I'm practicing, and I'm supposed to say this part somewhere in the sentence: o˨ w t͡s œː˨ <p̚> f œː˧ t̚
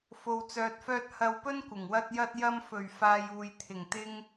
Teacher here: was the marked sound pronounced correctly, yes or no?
no